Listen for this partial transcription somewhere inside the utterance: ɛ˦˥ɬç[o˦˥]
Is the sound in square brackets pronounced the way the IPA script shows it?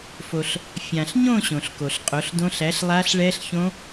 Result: no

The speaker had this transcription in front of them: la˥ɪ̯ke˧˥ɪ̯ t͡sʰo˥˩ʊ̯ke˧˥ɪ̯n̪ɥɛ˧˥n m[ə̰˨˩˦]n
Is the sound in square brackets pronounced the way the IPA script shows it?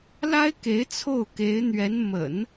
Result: yes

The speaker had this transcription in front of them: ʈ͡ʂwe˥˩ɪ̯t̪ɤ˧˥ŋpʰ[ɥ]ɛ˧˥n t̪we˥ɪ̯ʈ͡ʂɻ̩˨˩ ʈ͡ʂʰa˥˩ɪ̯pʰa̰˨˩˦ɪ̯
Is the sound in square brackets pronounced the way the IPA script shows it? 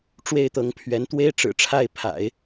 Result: yes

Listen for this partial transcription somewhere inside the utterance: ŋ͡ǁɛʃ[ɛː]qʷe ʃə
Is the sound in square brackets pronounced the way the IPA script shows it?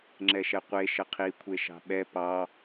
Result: no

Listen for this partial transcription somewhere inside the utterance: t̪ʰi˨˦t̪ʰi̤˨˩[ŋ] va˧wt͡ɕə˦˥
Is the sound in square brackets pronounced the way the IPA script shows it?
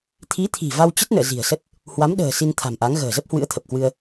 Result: no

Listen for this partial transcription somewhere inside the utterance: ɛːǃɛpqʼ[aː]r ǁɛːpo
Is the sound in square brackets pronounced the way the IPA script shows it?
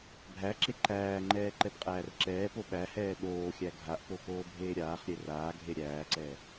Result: no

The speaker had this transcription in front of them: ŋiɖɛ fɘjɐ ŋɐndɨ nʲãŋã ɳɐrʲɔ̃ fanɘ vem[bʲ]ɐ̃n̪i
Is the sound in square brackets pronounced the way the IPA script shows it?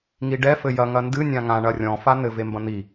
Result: no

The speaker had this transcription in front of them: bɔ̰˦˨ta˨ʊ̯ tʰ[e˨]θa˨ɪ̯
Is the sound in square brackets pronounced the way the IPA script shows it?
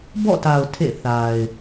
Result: no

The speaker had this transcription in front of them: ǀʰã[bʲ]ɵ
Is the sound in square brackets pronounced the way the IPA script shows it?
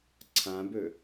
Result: no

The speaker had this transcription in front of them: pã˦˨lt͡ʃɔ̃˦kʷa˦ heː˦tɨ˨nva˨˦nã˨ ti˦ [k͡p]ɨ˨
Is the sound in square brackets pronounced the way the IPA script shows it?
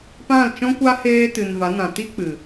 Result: yes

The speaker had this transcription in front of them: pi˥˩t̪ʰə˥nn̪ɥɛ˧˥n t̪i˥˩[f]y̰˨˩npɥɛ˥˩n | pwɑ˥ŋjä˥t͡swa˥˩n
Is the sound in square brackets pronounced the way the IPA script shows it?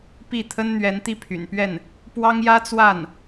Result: no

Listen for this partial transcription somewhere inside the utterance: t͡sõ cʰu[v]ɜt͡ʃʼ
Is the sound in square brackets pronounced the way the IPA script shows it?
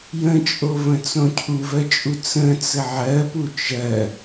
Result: yes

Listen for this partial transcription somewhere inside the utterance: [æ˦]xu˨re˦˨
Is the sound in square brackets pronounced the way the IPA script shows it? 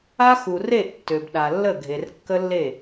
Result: no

